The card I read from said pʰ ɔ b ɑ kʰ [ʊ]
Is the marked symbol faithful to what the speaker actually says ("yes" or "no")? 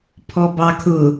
yes